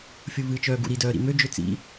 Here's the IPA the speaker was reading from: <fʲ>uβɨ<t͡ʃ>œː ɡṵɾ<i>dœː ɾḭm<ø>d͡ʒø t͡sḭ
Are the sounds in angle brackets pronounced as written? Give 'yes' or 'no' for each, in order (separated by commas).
yes, yes, yes, yes